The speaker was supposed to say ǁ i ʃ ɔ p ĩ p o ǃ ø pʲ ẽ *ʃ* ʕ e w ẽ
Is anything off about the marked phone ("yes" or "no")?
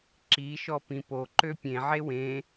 yes